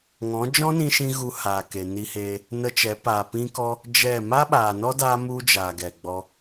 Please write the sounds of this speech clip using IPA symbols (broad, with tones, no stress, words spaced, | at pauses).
ŋɔ̃˨˦d͡ʒɔ̃˦nĩ˧ʃĩ˧ ɣu˧haː˨ke˨ ni˧heː˧ | nə˧t͡ʃɛ˨˦ paː˨pĩ˦kɔ˦ | d͡ʒɛ˦˨ ma˦ɓaː˨nɔ˦ daː˦ mu˦d͡ʒaː˨ɡɛ˨ɡ͡bɔ˧